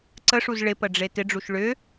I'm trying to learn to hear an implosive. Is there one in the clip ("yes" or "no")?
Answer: no